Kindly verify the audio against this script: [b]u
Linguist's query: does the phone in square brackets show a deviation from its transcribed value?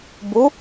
no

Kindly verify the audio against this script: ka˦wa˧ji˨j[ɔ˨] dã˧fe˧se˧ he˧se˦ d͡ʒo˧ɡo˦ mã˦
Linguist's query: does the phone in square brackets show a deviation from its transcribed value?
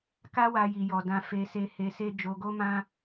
no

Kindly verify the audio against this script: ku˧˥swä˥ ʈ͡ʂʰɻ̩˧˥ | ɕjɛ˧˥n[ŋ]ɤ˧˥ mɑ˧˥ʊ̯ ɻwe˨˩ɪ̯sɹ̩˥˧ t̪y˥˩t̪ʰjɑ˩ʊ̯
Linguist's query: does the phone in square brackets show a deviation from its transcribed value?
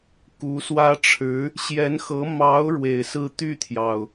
yes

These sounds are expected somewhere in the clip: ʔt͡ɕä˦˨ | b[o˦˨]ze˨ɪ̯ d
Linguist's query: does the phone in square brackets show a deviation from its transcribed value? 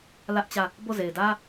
no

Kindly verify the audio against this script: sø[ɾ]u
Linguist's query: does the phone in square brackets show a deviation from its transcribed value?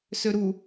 no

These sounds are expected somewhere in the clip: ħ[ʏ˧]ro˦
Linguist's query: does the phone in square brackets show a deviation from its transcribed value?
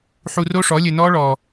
yes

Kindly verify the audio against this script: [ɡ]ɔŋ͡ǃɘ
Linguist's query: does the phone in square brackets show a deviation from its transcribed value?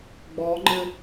yes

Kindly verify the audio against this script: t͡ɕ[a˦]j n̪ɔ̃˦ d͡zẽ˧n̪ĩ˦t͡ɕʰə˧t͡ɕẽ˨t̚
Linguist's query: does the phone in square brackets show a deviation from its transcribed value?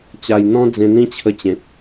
yes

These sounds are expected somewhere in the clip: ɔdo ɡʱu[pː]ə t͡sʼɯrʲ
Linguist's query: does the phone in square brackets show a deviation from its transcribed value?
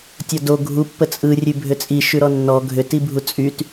no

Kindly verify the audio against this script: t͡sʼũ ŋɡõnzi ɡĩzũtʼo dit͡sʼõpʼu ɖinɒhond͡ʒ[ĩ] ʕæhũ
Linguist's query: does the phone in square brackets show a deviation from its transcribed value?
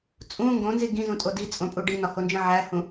no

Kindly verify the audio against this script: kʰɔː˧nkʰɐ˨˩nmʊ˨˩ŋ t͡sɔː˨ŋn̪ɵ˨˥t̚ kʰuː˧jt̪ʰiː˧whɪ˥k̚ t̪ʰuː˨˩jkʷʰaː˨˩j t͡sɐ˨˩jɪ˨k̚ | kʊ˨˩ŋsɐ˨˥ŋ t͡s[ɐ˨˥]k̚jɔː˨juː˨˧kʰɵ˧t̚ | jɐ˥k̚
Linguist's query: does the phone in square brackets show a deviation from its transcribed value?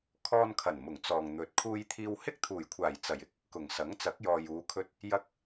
no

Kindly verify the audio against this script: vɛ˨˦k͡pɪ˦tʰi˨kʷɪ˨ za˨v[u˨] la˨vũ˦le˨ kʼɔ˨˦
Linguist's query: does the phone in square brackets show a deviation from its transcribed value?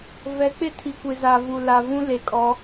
no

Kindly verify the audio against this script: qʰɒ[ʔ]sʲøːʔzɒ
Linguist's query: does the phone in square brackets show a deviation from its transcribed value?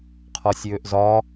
yes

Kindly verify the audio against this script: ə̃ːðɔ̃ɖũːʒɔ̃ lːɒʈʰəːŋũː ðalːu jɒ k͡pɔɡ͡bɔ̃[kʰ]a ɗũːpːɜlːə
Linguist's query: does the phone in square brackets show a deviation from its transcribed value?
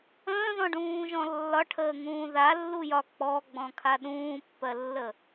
no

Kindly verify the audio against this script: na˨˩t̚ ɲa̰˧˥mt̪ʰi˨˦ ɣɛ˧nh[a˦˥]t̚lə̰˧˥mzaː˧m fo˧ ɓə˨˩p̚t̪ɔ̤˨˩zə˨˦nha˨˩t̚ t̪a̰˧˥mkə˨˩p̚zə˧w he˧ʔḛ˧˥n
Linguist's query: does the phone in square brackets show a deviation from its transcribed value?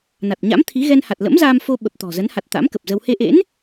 yes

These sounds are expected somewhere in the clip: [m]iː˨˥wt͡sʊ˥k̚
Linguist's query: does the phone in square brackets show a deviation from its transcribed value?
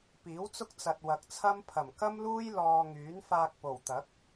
yes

